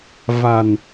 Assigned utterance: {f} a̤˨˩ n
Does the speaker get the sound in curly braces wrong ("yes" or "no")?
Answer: yes